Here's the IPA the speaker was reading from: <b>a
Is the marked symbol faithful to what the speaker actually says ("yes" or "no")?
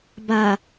yes